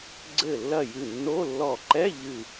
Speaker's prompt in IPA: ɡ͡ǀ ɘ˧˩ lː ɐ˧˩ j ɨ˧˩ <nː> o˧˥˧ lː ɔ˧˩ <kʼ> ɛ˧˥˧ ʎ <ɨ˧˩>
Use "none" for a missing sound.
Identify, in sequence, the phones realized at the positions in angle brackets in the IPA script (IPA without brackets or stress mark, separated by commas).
nː, ǃ, ɨ˧˩